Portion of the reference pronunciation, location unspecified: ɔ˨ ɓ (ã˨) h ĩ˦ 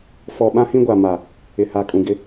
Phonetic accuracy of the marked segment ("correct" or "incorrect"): incorrect